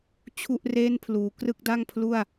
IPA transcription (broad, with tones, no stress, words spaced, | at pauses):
t͡ɕʰu˥˩ʔ reː˥˩npʰluː˩˦ krɯ˥˩k̚da˥˩ŋpʰlu˥˩a̯